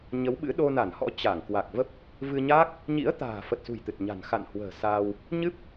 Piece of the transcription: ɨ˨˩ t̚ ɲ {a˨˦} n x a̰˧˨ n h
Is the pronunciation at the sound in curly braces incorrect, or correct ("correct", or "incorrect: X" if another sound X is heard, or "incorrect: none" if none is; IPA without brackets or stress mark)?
incorrect: a̤˨˩